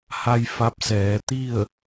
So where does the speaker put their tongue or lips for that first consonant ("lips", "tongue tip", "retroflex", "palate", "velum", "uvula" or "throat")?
throat